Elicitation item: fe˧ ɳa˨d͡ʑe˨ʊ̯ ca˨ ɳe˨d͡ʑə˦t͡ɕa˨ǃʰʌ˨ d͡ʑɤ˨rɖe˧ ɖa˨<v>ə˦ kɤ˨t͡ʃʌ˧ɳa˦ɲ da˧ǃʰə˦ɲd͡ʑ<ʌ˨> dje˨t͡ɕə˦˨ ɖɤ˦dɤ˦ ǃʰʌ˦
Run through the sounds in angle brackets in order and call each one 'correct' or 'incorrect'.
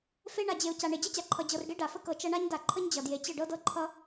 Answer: incorrect: f, correct

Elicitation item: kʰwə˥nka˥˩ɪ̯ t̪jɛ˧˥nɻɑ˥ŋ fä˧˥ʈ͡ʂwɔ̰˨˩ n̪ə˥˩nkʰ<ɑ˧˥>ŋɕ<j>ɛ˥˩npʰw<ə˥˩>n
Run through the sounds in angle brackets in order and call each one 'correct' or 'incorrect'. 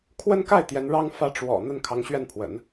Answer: correct, incorrect: ɥ, incorrect: ə̰˨˩˦

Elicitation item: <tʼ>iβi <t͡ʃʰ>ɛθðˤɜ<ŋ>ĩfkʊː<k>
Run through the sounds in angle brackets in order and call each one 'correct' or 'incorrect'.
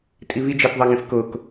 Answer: correct, incorrect: d͡ʒ, correct, correct

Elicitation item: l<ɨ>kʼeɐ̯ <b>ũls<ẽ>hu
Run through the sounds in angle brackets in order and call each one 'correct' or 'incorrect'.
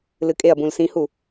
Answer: correct, correct, incorrect: ĩ

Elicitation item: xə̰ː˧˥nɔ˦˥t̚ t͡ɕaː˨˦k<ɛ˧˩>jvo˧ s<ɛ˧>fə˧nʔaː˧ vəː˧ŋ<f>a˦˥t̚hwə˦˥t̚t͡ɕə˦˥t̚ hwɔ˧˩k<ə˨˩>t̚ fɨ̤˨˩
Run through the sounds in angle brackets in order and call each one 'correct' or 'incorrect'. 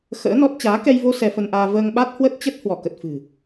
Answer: incorrect: ɛ˧, correct, incorrect: ɓ, correct

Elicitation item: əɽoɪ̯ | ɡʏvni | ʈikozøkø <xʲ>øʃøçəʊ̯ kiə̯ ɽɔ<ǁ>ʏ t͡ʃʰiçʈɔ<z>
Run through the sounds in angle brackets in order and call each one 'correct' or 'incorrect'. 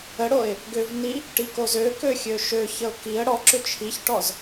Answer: correct, correct, correct

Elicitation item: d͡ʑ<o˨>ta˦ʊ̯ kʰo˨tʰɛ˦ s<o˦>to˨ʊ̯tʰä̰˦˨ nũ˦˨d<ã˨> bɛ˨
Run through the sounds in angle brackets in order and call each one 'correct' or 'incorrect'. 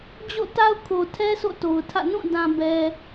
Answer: incorrect: o̰˦˨, incorrect: o̰˦˨, correct

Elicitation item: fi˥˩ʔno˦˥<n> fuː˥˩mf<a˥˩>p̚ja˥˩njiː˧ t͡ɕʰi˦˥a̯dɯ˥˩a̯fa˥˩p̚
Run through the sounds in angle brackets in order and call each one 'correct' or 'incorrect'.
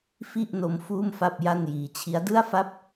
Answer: incorrect: m, correct

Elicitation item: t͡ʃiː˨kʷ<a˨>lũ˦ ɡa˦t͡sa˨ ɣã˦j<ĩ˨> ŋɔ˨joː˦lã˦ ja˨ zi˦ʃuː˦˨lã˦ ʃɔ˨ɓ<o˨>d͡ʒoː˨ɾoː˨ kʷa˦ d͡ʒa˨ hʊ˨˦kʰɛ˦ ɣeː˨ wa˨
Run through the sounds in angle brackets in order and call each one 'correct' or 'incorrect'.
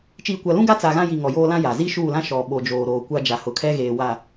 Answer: correct, incorrect: i˨, correct

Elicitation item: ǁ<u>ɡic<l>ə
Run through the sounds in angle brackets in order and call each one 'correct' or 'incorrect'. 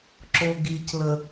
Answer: incorrect: o, correct

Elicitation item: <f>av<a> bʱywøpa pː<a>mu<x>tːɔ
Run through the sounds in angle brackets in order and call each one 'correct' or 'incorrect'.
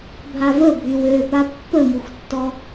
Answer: incorrect: bʱ, incorrect: ə, incorrect: ə, correct

